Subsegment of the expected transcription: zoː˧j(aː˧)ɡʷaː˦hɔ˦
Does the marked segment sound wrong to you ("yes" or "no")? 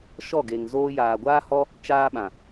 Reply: yes